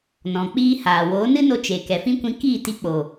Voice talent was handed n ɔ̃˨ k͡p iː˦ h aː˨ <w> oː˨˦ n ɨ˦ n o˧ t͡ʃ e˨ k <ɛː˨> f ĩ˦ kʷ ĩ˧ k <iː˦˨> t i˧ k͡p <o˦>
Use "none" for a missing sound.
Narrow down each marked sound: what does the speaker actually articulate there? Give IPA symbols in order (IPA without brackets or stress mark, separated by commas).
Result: w, ɛ˨, iː˦˨, o˨